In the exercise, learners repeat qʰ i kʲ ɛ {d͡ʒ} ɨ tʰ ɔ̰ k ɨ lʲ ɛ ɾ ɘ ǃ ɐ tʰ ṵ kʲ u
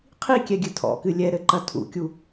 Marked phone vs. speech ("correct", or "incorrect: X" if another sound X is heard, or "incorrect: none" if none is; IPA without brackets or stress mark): incorrect: ɡʲ